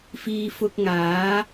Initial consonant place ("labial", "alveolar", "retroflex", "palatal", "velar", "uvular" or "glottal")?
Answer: labial